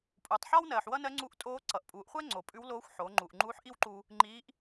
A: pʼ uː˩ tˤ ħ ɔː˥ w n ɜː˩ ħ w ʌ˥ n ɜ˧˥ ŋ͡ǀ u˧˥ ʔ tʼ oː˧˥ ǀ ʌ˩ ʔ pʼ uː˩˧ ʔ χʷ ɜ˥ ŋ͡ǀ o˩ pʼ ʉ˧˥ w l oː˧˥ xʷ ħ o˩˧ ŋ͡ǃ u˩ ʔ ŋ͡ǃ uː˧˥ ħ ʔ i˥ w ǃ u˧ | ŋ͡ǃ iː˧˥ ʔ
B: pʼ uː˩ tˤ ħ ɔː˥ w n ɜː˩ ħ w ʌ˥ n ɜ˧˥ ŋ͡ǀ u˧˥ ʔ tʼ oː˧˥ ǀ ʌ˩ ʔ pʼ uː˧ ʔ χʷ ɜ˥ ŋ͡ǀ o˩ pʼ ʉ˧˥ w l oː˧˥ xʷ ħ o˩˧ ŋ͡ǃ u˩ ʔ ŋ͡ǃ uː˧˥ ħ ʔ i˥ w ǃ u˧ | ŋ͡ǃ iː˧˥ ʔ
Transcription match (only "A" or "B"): A